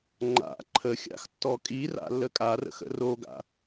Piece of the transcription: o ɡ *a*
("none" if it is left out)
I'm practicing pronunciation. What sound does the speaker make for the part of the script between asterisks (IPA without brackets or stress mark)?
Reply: a̰